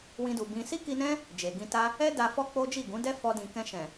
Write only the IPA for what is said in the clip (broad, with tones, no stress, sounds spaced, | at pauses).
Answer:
w ĩ˧ d u˨ b ĩ˧ s i˦ k i˧ n ɛ̃˦ | d͡ʒ e˨ ɡ ĩ˧ t a˦ | ɛ˦ d a˧ f ɔ˦ k͡p o˦ d͡ʒ i˦˨ ɡ ũ˨˦ d ɛ˦ f ɔ˧ d ĩ˨ k ɛ̃˧ ʃ ɛ̃˨